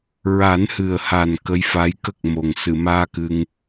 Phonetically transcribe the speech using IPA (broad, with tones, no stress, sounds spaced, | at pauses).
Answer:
ɹ a˨˩˦ n h ɨ˨˩ ə̯ h a˨˩ n k ə˧˥ j f a˧˥ j k ə˦˥ k̚ m o˨˩ ŋ s ɨ˨˩˨ m aː˧ k ɨ˧ ŋ